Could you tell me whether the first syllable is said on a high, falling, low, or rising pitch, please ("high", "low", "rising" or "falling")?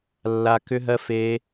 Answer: high